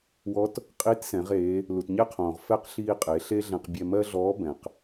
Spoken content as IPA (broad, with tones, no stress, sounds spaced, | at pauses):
w ɔ˧˥ t | qʼ i˧˥ t s ɛ̃˩˧ ʁ eː˩˧ | l u˩ t ɲ ɛ˥ qʰ õː˩ ʁ f ɛ˥ q ɬ iː˧ qʼ e˩˧ ɬ e˥ ɮ ɛ̃˧ q bʲ ɛ˧ m ɜ˥ ɮ ɔː˧˥ b ɛ̃˩ q